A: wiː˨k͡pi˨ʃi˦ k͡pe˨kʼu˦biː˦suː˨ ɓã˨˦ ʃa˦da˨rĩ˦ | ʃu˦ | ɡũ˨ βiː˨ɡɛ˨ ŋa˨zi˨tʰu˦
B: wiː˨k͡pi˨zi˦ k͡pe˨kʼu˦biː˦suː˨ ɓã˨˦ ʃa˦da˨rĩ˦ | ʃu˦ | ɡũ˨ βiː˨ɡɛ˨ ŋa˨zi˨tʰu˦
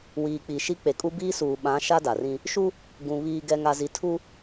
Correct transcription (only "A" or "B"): A